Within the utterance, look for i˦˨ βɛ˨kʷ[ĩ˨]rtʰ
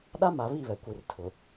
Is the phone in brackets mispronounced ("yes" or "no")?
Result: yes